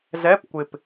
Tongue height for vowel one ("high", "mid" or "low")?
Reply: mid